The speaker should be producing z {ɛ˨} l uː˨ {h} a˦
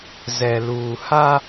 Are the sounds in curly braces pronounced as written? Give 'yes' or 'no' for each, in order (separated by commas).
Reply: yes, yes